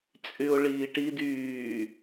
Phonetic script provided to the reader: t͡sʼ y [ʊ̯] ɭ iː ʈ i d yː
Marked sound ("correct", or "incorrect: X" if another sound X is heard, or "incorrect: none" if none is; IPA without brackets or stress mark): correct